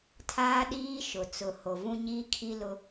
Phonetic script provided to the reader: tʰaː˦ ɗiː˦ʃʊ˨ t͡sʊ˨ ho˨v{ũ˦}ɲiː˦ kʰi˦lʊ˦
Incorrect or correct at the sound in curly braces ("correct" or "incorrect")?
correct